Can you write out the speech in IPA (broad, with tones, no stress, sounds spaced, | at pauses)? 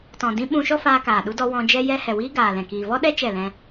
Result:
t ɔ̃˨ d ĩ˧ ɓ ũ˧ ʃ ɔ˦ f aː˧ k aː˨ ɗ u˧ d ɔ˧ w ɔ̃˧ d͡ʒ ɛ˦ j ɛ˦ h ɛ˨ w iː˦ ɡ aː˨ l ɛ̃˨ k iː˨ v ɔ˦ ɗ ɛ˦ t͡ʃ ɛ˦˨ l ɛ̃˦